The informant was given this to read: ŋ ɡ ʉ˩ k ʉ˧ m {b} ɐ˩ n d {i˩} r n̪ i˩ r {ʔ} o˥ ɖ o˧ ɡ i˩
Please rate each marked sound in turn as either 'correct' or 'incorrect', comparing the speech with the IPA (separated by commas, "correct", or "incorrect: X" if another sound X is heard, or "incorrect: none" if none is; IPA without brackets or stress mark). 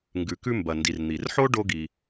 correct, correct, incorrect: ħ